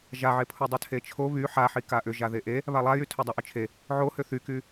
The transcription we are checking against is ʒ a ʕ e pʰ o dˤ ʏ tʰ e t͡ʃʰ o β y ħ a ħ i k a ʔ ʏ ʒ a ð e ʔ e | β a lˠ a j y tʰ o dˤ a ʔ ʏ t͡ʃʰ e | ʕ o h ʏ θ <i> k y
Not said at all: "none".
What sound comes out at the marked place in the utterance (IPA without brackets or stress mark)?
y